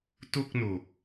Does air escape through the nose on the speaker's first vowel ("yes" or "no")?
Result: no